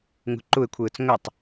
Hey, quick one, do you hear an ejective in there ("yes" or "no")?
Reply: no